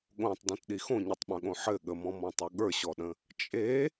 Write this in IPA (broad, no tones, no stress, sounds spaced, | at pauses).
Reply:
ɠ õ tˤ d õ t ɗ i x õ ɲ ɘ tˤ ɓ œ̃ ɠ õ ħ ɘ ɠ ə m ɔ̃ m ɔ̃ tˤ u ɠ ə˞ ɕ ɔ ɗ ə̃ | t͡ʃʼ e